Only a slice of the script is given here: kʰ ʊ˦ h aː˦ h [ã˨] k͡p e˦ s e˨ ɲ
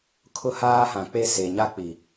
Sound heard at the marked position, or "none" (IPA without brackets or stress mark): ã˨